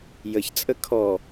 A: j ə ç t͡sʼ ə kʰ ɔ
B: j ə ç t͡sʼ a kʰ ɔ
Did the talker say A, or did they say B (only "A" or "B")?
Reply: A